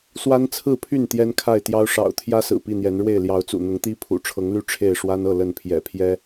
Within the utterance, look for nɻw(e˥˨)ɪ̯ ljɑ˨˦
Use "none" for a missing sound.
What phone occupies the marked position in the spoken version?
e˥˨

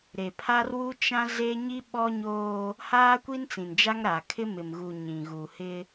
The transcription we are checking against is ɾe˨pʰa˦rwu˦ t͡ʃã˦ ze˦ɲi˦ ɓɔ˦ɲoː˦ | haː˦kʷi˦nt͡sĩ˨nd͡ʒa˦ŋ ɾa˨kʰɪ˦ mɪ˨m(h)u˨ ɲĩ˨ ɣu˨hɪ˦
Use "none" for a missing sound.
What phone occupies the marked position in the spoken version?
ɣ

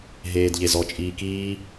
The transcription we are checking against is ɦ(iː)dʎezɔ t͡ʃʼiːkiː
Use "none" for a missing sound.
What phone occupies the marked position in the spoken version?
eː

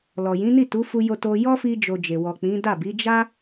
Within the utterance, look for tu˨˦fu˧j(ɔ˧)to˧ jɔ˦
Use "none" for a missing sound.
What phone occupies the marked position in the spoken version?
o˧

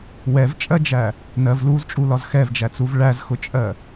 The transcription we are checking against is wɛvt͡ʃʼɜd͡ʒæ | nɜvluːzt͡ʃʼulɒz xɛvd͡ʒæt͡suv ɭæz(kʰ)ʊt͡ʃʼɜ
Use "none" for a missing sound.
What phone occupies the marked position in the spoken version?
x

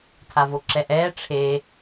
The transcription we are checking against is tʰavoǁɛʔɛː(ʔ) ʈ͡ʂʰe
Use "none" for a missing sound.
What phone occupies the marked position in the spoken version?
none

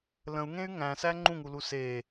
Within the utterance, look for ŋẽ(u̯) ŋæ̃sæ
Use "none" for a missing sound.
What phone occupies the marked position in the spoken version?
y̯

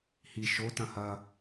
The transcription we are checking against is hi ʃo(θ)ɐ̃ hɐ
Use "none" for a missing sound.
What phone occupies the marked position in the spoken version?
t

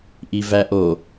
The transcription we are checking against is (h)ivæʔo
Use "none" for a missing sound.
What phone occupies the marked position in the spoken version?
ʔ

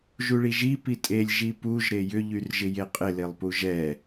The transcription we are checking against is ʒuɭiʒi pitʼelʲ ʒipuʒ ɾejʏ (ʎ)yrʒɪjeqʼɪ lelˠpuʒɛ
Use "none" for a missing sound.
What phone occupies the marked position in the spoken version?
ʎ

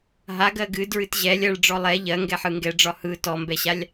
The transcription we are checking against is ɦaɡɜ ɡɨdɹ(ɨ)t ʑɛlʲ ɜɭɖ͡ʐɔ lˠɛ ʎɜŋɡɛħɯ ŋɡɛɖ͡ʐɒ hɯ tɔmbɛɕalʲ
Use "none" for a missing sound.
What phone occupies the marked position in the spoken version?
ɨ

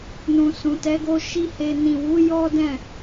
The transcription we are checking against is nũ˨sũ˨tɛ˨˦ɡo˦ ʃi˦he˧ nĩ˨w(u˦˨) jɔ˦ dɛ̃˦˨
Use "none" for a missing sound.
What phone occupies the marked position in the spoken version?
u˨˦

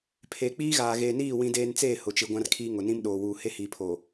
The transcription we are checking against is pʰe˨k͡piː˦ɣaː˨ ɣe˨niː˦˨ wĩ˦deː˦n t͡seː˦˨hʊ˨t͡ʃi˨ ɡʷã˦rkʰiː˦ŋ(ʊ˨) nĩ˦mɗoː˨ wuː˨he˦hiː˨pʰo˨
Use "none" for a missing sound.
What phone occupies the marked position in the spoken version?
ʊ˨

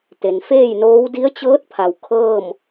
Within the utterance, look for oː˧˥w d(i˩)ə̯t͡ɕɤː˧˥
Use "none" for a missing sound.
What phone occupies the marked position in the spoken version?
i˧˥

